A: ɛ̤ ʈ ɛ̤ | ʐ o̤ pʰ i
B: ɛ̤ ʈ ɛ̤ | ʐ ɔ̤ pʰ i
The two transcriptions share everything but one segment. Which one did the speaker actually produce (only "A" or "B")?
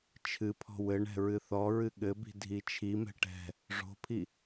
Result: A